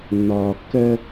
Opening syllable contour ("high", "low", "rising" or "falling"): low